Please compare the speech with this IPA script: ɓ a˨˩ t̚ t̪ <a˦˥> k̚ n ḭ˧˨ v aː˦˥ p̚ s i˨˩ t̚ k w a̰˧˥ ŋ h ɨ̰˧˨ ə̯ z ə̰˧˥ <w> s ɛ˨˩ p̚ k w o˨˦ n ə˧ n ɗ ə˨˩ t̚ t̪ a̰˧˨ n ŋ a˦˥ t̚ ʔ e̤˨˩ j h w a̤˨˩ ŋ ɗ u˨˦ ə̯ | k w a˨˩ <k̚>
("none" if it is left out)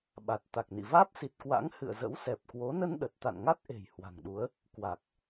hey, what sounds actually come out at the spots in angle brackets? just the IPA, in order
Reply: a˨˩, w, k̚

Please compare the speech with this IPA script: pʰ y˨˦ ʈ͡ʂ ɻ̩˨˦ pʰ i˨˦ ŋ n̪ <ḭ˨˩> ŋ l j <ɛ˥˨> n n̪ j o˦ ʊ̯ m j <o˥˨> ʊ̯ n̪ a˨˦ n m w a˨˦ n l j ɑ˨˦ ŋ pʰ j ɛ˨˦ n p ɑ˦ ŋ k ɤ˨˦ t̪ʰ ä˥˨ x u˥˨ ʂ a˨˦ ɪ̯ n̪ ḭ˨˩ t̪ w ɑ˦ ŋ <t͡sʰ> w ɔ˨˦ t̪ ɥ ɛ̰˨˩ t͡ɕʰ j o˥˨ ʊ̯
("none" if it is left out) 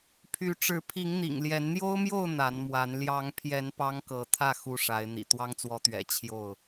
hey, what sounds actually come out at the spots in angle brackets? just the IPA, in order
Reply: ḭ˨˩, ɛ˨˦, o˥˨, t͡s

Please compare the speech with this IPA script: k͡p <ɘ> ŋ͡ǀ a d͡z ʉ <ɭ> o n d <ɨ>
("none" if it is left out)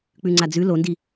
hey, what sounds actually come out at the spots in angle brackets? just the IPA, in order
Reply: ʉ, l, i

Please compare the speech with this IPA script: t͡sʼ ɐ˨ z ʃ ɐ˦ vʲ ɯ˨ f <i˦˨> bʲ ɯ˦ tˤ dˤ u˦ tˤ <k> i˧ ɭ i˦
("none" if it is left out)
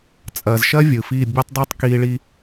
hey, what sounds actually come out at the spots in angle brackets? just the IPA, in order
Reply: i˦˨, k

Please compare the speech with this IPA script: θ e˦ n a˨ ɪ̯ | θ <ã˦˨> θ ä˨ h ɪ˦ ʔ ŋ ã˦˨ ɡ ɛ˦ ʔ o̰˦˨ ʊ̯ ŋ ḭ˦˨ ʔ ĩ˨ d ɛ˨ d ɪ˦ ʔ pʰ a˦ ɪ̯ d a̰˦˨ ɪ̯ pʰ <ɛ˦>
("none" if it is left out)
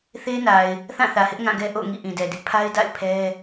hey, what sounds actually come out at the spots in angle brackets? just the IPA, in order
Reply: ã˦˨, ɛ˦

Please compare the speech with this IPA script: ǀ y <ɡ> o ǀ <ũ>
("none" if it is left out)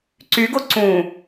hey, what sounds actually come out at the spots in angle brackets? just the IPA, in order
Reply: ɡ, ũ

